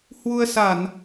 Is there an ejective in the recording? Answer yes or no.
no